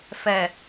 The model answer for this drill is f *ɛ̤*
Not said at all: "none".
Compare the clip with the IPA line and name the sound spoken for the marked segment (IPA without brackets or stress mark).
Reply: ɛ